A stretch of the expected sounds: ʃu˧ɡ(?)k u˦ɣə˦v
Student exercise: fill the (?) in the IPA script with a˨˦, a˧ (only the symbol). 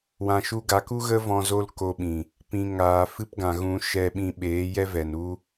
a˨˦